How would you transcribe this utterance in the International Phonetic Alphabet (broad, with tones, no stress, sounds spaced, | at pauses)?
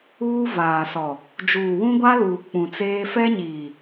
uː˦ v aː˨ s ɔ˨ | d͡ʒ uː˨ w ũ˦ ɡʷ a˦ l uː˨ k͡p ũ˨ t͡s eː˦ f ɛ˦ ɲ iː˨